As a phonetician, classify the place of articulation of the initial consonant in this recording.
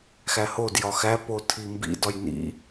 velar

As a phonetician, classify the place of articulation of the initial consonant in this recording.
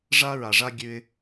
retroflex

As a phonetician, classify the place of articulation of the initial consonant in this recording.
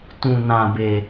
alveolar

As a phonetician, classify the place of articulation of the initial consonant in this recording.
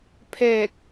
labial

